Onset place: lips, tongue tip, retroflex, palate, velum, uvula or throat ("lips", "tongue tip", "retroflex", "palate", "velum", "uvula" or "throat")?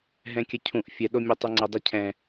throat